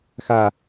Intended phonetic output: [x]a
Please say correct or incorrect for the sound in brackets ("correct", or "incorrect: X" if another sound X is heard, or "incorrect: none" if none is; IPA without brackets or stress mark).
correct